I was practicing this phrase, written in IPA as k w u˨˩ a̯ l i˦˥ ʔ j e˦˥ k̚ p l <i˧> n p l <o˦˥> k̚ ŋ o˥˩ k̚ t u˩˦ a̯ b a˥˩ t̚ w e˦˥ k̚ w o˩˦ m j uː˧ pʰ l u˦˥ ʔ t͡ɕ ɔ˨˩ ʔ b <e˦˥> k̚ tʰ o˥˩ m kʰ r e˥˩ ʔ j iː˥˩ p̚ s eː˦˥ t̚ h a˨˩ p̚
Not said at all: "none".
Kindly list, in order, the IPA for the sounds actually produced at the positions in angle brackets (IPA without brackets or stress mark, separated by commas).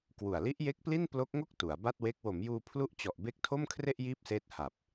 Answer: i˥˩, o˦˥, e˦˥